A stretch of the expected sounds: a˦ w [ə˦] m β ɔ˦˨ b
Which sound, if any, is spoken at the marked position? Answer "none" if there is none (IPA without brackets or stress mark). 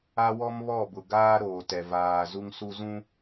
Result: ɔ˦